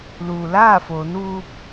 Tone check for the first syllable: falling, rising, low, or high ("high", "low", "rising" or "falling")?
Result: low